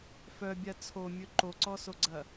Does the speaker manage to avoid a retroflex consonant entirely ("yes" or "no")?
yes